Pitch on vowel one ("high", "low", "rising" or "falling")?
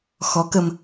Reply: rising